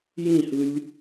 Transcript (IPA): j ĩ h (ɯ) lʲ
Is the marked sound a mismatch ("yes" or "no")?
no